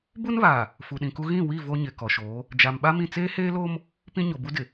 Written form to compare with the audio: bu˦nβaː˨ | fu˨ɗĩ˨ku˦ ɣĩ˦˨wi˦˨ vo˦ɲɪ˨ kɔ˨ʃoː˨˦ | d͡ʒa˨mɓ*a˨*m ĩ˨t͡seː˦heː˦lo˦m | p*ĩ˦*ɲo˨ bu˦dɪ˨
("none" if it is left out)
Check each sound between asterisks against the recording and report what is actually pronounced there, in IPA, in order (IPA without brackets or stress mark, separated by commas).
a˦, ĩ˦